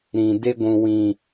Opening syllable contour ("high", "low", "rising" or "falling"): low